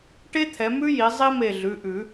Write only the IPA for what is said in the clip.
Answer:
ʈ e˥ t̪ʰ ɛ˨˦ m ʉ˥ j i˨˦ zˤ i˥ m e˧˩ ɮ ʉ˩˧˩ ʔ ʉ˨˩˦

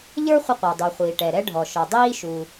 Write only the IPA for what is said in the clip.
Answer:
ʎ ə˞˥ χʷ ɪ˥ qʷ ə˞˩ dˤ u˩ χʷ iː˩ ʈ ɛ˩ ɾ ɛ˥ ɖʱ ɔ˩ ʃ ɔ˩ dˤ iː˥ ʃ u˩

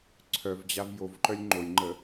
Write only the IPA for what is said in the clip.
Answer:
ǀʰ œ v d͡ʑ a v j o v ǃ œ lʲ ŋ͡ǃ o lʲ ŋ͡ǃ ə

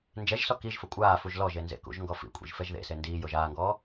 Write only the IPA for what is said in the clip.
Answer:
n d͡ʒ ɛ ʒ s ɔ k i ʒ f ə kʷʼ aː f u ʒ l ɔ ʒ e n z ḛ k ṵ ʒ ŋ ɡ ɔ f ḭ kʷʼ ḭ ʒ f ɛ ʒ ð ḛ s e n d iː j o ʒ aː ŋ ɡ ɔː

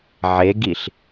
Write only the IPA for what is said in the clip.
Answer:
ʕ e ɡ i ɬ

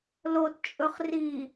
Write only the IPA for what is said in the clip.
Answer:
l o t t͡ʃʼ ɵ χ r i

